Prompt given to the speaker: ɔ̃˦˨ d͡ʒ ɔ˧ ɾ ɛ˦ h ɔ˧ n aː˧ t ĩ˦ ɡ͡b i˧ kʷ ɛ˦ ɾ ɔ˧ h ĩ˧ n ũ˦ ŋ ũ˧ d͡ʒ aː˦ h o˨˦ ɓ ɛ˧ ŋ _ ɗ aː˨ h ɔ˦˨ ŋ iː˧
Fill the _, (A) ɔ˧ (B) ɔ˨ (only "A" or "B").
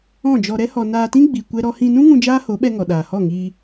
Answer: B